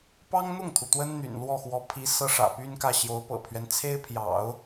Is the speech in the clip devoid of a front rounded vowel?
no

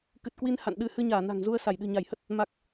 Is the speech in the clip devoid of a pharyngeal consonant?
yes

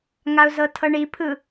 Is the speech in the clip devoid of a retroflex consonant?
no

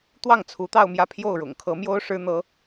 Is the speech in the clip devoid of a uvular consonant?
yes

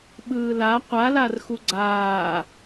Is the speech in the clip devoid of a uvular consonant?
no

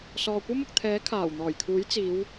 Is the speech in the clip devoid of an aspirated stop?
no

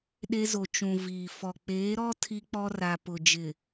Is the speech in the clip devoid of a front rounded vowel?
yes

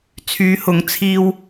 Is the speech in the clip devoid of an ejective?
yes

